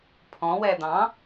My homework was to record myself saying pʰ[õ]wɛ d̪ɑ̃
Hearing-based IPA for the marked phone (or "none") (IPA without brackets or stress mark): ɔ̃